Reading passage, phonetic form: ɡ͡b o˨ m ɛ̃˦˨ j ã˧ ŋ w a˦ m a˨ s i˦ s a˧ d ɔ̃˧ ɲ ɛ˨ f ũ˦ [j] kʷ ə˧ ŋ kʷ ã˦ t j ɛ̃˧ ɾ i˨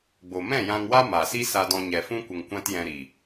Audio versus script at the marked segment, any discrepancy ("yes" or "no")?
yes